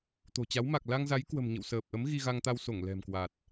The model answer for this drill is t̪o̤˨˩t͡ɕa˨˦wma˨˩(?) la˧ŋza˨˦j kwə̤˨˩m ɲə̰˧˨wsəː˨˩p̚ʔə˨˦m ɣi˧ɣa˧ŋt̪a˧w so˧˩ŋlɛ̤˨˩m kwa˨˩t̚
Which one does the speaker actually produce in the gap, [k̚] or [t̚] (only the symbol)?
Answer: k̚